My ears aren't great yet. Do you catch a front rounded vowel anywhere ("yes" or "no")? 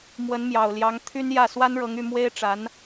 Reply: yes